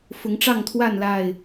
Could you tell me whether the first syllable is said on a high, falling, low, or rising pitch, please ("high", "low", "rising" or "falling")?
rising